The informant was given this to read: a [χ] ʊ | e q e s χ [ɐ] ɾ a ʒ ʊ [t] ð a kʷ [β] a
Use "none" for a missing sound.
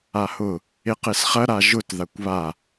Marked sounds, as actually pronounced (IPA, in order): h, ɐ, t, β

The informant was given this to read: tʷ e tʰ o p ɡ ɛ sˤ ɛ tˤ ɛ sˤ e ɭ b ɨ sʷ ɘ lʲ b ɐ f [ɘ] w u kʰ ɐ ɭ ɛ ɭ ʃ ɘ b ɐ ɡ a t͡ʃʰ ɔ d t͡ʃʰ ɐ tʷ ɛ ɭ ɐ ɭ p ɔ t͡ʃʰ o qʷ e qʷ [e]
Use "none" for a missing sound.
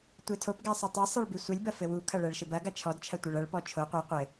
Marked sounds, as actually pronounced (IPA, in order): ɘ, ɘ

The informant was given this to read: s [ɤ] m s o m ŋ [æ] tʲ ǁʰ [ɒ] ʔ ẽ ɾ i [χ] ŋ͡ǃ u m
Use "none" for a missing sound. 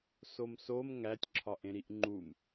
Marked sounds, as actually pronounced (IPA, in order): o, æ, ɒ, ʔ

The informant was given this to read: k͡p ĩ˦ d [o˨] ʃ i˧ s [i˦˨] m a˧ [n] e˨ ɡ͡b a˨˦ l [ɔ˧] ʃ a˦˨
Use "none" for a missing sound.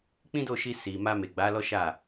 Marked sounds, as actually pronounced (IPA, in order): o˦˨, i˨, m, ɔ˦

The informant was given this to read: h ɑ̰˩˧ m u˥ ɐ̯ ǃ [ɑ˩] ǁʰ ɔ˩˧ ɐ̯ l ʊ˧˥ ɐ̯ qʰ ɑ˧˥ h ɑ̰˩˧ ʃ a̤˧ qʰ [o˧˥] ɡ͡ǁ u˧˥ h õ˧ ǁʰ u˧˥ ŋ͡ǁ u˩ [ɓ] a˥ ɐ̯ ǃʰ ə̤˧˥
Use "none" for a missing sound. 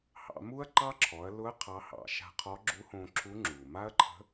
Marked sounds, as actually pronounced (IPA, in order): ɑ˥, ɔ˧˥, m

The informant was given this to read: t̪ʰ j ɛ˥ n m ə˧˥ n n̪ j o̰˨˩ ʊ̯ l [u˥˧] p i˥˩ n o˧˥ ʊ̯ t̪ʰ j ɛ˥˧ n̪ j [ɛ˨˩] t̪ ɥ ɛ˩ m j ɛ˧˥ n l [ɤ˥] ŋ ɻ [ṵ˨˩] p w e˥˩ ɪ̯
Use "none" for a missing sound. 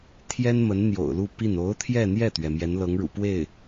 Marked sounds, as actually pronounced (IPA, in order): u˥˧, ɛ˥˩, ɤ˧˥, ṵ˨˩

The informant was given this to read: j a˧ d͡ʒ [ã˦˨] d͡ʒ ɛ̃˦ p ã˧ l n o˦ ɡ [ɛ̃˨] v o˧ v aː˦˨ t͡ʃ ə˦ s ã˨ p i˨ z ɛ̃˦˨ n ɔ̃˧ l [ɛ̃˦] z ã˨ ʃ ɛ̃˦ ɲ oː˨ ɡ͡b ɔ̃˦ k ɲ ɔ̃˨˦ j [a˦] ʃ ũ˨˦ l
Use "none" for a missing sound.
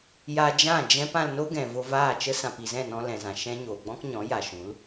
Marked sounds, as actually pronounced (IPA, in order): ã˦˨, ɛ̃˨, ɛ̃˨, a˨

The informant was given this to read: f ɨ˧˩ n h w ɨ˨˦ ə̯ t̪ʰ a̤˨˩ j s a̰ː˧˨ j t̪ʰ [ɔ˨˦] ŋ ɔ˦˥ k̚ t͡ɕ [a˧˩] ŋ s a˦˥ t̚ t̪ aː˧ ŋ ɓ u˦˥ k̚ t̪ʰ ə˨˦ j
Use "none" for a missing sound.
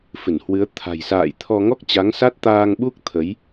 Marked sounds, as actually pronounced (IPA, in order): ɔ˧, a˨˦

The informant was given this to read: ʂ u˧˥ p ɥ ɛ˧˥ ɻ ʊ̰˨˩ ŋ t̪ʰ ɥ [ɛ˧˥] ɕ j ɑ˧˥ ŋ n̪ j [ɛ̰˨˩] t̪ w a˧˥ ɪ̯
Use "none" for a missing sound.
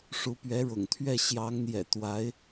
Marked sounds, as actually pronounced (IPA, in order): ɛ˥˩, ɛ̰˨˩

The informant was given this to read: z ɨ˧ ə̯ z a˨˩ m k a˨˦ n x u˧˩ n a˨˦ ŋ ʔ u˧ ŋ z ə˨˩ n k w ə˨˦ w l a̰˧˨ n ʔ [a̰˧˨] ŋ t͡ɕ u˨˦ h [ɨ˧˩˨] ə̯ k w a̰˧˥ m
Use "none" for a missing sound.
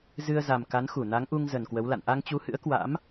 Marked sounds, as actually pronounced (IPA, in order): a˧, ɨ̰˧˥

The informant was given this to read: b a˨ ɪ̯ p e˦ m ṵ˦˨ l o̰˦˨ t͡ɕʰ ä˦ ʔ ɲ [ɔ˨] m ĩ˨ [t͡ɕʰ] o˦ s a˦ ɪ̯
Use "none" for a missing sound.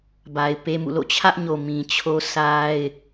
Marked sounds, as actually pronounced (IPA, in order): o˨, t͡ɕʰ

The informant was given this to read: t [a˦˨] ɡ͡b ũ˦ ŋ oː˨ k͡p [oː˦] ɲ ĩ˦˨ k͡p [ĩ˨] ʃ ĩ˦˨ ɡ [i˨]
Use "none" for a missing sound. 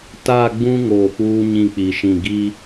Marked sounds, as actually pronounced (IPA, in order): a˦˨, uː˦, i˨, i˦

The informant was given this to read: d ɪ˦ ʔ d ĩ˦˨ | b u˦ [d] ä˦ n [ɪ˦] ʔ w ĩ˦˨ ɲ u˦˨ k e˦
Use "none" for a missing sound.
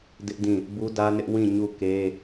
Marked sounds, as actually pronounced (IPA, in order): d, ɪ˦

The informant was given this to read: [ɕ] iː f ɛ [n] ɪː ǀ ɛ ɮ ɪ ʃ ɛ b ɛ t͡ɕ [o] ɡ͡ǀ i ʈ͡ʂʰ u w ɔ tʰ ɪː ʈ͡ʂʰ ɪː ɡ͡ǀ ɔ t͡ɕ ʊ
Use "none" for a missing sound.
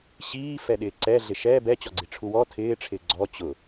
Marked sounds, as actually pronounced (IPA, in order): ɕ, ɗ, ɔ

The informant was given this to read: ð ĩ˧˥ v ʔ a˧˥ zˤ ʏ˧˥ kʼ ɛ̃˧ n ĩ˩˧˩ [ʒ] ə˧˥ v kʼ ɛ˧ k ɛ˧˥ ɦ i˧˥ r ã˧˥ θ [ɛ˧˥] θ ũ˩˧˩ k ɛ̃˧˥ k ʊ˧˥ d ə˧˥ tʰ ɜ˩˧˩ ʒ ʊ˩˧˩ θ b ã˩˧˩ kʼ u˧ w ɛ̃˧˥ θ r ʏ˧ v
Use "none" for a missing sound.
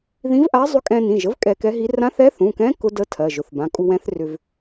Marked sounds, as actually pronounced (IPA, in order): ʒ, ɛ˧˥

